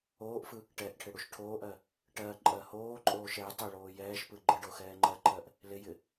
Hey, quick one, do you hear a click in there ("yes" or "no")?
yes